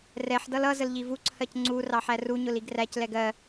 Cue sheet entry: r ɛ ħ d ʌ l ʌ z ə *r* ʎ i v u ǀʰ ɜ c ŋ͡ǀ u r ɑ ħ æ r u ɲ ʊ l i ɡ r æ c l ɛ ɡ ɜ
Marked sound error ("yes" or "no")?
yes